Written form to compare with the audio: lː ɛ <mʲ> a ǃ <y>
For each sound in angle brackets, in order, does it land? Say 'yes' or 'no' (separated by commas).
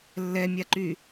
yes, yes